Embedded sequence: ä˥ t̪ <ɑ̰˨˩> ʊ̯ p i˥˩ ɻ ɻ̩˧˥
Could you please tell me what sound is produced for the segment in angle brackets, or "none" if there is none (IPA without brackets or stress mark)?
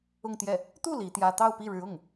ɑ˥˧